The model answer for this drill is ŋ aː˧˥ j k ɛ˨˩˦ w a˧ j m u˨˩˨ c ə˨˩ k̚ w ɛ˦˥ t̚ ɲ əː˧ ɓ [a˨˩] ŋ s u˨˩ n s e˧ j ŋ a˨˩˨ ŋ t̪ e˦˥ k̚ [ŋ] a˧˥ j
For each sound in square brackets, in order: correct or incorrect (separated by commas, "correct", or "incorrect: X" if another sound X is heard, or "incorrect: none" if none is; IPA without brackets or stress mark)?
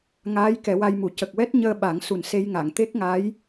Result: incorrect: a˨˩˦, correct